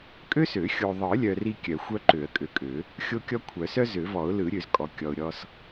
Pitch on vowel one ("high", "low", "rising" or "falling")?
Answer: high